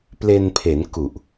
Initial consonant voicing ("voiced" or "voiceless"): voiceless